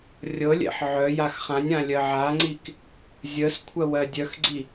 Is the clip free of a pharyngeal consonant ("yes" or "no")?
no